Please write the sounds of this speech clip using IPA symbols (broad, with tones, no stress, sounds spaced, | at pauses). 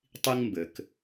tˤ i˦ ŋ m b ɘ˨ k